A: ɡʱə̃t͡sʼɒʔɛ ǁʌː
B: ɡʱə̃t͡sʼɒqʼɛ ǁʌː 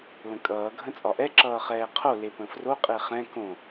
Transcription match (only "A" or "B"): A